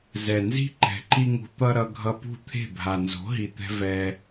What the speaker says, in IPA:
z ɛ˨ n z i̤˦ ǃ ɛ̤˨ ǃ i˦ ŋ ṳ˧ t̪ ʌ˦ ɾ ʌ˧ ɡʱ ʌ˧ p ṳ˦˨ t̪ʰ e̤˦˨ bʱ a˨ n z o̤˨˦ ɦ i˨ t̪ ɛ̤˧ v ɛ˧

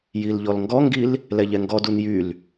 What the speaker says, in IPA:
j i l ʎ ɔ l ŋ ɡ ɔ ŋ ɡ i l | l ɛ ʎ ɛ ŋ ɡ ɔ d u n j y l

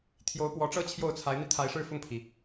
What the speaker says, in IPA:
t̪ʰ j o˧˥ ʊ̯ p w ɔ˧˥ ʈ͡ʂ ɤ˥˧ t͡ɕʰ j o˥˩ ʊ̯ t͡sʰ a˧˥ ɪ̯ n̪ i˧ t̪ʰ a˧˥ ɪ̯ ʂ ɻ̩˥˧ f ʊ˥˩ ŋ pʰ i˩

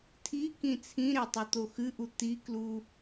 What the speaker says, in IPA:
tʰ i k ĩ t͡sʰ ĩ ɾ e tˤ u t̪ o x ɨ ʔ u t̪ i k l u

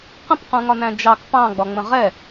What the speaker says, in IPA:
q ə̃ p q ũ ŋ ɒ n æ̃ d͡ʒ ɑ k p ɑ̃ ɡ͡b ɒ ŋ͡m ə̃ ʁ ɛ

